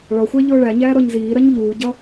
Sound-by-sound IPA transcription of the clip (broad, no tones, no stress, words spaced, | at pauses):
ɭɒxʷæ ʎʊːɭæɲæː ɾɔɲziːɾɜɲ ʎuːɟʌ